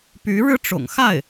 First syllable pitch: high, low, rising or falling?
rising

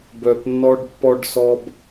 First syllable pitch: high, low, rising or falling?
low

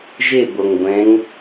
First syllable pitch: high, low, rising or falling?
falling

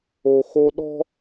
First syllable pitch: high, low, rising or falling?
low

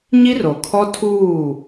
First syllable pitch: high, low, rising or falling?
high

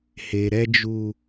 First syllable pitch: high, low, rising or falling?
low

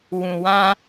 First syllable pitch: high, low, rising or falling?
low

